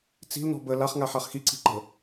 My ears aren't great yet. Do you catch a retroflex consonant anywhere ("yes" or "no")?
no